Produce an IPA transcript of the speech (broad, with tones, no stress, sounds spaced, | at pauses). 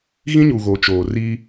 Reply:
ɣ ĩ˦ ɲ u˨ ɣ o˨ t͡ʃ oː˨ r i˦